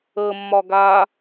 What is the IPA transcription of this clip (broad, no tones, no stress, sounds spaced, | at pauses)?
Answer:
ə mː ɒ ɡ a